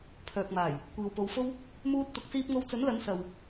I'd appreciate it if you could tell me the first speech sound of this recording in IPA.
pʰ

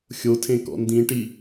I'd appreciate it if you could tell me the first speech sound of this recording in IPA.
xʲ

